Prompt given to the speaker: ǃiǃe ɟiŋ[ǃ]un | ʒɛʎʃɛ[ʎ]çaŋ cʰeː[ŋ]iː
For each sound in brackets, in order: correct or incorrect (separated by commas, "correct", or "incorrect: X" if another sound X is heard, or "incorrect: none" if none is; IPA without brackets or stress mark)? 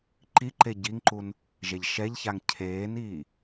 correct, correct, incorrect: n